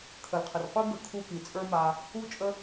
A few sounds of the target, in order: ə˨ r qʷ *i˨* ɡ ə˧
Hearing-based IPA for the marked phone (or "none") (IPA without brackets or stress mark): i˦